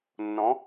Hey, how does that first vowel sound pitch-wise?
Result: rising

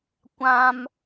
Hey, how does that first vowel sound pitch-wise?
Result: high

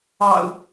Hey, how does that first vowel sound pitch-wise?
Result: low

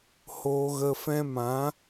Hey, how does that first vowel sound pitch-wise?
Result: high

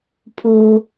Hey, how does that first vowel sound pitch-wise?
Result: low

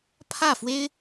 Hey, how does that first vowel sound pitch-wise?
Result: falling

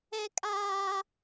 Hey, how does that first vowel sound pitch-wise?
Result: high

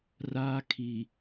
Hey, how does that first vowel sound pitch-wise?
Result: high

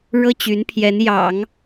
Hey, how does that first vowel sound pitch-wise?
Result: high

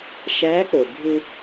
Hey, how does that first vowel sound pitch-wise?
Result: rising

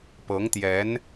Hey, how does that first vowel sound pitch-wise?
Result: rising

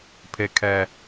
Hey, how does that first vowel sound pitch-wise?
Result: low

